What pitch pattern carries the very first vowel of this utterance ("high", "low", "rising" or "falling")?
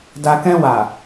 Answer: low